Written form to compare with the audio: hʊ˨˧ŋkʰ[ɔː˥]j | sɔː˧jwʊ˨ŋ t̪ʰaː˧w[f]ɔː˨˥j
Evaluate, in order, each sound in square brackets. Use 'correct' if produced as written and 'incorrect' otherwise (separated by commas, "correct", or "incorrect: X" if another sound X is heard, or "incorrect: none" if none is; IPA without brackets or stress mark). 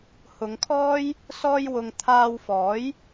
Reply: correct, correct